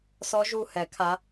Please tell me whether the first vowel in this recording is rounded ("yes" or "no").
yes